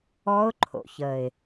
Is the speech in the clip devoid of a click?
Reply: no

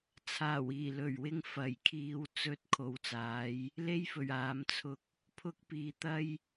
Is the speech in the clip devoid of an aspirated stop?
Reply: no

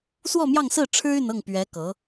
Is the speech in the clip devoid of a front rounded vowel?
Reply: no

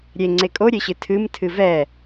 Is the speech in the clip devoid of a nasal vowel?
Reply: yes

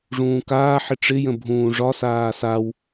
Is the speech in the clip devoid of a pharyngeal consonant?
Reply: no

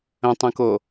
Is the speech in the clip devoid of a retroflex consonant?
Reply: yes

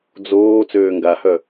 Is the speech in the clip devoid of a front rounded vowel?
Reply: no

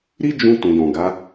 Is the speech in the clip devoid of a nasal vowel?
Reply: no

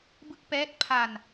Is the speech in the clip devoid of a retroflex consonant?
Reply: yes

